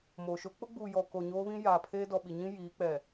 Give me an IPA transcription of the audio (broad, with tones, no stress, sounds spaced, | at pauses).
m oː˨ ʃ o˦ k͡p ʊ˦ ɡ͡b uː˨ j ɔ˨ k o˨ ɲ oː˦ β ĩ˦ j aː˨ pʰ eː˦ d ɔ˨ ɓ i˨ ɲ ĩ˦ j iː˨˦ k͡p ɛ˨